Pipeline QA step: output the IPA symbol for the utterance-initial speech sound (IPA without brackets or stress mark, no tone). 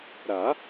ɾ